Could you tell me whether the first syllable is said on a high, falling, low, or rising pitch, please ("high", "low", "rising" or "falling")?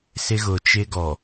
high